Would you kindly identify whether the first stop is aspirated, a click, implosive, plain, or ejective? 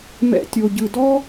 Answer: plain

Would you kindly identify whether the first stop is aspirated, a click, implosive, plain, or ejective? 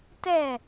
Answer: plain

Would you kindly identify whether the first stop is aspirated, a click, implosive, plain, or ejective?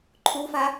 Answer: click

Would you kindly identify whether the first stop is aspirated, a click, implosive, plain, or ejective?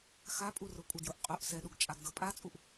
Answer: ejective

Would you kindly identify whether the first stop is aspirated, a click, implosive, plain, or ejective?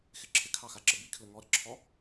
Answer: click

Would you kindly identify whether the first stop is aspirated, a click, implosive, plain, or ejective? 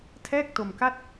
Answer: aspirated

